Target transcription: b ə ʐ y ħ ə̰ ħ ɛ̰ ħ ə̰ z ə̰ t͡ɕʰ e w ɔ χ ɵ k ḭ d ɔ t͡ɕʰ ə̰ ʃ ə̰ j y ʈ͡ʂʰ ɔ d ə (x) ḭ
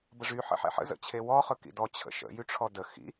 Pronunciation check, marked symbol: correct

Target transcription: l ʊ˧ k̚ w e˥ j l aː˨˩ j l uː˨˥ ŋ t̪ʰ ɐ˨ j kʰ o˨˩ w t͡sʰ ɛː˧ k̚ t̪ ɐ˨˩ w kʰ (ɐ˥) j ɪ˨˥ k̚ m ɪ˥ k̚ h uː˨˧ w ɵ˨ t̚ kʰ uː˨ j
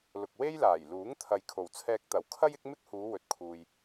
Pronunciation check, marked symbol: correct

